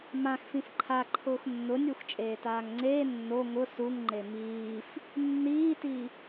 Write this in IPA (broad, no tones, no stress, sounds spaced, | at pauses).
m ã x f ĩ f ǃʰ a ǃʰ ʊː x nː ʊ nʲ u x t͡ʃʼ eː t aː ŋ ŋ͡ǀ eː nː o ŋ ʊ s u ŋ ŋ͡ǃ e m iː f | nː iː t i